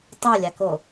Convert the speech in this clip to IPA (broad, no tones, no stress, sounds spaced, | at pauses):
tˤ o lʲ a k o